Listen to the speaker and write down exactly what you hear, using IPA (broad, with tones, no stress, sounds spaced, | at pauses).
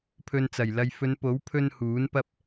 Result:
pʰ ɵ˧ n t͡s ɐ˨˩ j l ɐ˧ j f ɵ˨˧ n p o˨˥ w pʰ ɵ˥ n h uː˨˥ n p ɐ˥ p̚